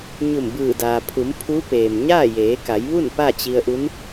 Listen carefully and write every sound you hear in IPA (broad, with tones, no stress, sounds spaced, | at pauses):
ɲ u˧˩ m b ɯː˧˩ d aː˩ pʰ u˩˧ m pʰ u˧˥ p eː˩ m ɲ aː˥˨ j eː˩˧ k a˩˧ j ʋ u˥˨ n p a˥˨ t͡ɕ i˧ ə̯ ʔ u˧˥ n